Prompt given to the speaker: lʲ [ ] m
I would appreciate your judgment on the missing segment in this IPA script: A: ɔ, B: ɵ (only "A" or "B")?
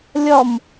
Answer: A